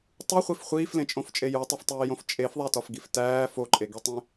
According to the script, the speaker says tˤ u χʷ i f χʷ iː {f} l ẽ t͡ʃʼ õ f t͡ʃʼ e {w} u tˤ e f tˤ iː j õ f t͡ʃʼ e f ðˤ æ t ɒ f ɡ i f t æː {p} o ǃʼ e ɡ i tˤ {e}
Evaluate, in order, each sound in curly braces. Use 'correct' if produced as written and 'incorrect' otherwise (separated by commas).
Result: correct, incorrect, incorrect, incorrect